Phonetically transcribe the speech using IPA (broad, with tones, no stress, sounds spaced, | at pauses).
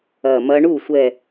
ɐ˧˩ m ɐ˦˥ ɳ u˥˩ sʷ ɛ˧˩